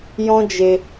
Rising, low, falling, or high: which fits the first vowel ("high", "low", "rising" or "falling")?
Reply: high